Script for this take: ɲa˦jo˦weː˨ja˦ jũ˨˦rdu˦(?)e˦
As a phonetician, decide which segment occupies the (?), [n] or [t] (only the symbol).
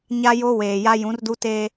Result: t